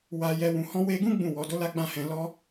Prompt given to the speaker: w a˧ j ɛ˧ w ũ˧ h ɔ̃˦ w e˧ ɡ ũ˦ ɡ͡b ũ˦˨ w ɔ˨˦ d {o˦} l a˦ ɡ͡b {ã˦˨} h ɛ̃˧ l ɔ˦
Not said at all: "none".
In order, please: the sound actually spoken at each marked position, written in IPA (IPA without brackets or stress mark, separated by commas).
o˦, ã˦˨